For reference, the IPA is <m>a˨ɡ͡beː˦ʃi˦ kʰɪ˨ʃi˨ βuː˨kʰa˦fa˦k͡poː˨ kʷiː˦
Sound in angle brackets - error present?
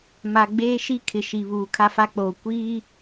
no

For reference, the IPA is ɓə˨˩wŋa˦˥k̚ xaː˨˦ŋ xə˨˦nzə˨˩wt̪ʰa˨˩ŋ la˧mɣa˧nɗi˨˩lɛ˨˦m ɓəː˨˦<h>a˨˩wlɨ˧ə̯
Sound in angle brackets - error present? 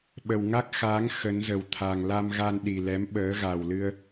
yes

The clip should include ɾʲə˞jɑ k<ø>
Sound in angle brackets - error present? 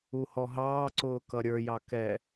yes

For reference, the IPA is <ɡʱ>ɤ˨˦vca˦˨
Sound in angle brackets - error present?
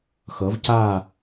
yes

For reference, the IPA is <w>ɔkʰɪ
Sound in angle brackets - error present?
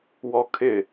no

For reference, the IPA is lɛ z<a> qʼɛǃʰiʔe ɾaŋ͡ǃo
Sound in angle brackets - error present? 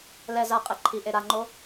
no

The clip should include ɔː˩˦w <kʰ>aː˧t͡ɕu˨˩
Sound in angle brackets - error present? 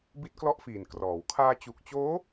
no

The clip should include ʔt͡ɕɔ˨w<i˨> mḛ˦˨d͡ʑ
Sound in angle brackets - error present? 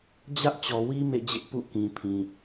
yes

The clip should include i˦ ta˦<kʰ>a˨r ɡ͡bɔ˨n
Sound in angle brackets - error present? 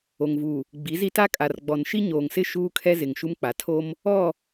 yes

